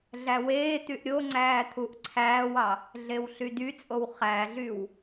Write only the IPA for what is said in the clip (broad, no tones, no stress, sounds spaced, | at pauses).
ɮ æ w eː t̪ y ʔ ɾʲ o ŋ͡ǀ æː t̪ʰ u ʔ ǀʰ æː w ɑ | ɮ e w ɬ y d y t͡sʼ o w χ æ ɮ y w